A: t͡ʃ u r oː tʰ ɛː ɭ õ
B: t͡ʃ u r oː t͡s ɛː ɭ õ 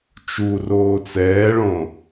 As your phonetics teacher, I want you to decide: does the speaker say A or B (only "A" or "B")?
B